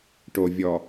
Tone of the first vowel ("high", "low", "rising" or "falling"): low